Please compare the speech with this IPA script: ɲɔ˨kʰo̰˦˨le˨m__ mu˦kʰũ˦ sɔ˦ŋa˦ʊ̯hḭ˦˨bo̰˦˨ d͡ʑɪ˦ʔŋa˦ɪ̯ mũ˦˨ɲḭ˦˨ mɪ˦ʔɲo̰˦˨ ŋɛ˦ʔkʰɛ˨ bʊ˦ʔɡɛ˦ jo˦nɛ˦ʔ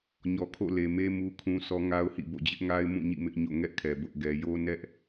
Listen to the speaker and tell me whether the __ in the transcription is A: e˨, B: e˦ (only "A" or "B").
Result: B